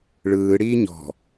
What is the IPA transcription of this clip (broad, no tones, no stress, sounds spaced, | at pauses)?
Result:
ɭ ɯː ɽ iː ɲ ɔ̤